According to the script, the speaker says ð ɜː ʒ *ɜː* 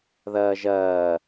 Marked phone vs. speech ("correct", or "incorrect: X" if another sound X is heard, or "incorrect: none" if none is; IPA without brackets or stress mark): correct